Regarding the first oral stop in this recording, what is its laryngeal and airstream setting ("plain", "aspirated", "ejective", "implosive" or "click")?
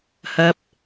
plain